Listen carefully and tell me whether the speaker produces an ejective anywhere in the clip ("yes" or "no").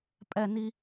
yes